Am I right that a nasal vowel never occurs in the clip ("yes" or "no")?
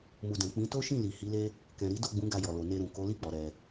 no